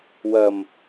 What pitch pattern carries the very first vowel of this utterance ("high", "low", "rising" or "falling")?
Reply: low